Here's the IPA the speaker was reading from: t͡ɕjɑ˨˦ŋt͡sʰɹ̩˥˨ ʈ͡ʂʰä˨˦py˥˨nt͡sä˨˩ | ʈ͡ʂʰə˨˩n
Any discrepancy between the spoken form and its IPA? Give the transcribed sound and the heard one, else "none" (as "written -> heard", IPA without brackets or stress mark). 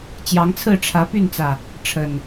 none